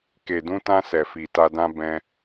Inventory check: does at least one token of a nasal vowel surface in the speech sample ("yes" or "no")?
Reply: yes